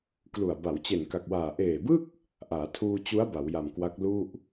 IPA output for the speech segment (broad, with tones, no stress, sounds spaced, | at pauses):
k l u˨˩ a̯ b a˩˦ w t͡ɕ e˨˩ n k a˨˩ k̚ w aː˨˩ ʔ eː˨˩ b ɯ˥˩ k̚ | ʔ aː˩˦ tʰ uː˧ t͡ɕ u˦˥ a̯ b a˩˦ w j a˨˩ m k w a˦˥ k̚ l u˥˩ ʔ